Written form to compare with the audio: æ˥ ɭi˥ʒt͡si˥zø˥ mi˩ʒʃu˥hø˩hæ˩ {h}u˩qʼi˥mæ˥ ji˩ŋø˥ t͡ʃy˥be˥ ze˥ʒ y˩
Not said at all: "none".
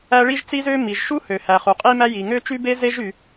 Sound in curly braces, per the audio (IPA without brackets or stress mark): χ